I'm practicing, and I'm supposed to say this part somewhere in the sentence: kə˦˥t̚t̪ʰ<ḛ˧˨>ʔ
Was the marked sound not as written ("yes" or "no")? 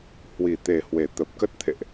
no